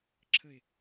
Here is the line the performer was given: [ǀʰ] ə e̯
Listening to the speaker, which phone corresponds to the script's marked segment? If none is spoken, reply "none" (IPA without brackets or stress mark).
ǁʰ